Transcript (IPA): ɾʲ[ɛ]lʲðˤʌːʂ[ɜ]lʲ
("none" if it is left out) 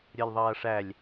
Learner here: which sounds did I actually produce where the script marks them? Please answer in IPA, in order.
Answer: ɜ, æ

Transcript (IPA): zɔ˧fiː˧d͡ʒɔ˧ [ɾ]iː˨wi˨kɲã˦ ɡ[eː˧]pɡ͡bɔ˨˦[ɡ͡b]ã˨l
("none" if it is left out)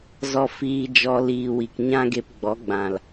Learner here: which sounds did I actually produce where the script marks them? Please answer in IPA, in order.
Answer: l, e˧, ɡ͡b

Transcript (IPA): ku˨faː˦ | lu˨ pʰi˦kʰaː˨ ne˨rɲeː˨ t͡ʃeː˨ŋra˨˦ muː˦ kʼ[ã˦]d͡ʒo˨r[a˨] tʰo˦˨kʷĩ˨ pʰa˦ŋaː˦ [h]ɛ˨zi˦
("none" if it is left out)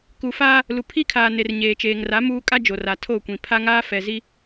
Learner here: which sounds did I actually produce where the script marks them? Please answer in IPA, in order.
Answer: a˦, a˨, f

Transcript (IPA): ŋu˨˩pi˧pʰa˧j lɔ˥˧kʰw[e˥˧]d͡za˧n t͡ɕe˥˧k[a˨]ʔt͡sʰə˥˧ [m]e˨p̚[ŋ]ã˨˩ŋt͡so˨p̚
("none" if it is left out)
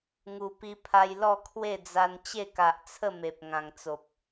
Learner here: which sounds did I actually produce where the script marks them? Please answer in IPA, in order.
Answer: e˥˧, a˨, m, ŋ

